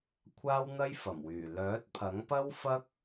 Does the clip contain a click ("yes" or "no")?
no